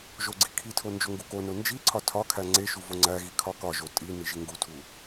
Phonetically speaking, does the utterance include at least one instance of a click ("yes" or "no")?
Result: yes